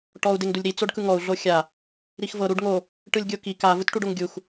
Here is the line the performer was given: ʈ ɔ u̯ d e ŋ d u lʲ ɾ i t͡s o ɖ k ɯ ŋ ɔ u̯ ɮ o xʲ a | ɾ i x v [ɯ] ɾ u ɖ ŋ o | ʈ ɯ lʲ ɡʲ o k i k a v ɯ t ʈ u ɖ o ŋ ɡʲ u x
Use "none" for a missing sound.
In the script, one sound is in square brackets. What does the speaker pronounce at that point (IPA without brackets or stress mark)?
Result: ɤ